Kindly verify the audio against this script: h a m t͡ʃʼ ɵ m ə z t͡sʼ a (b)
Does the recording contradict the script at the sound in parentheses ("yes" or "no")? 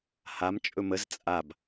no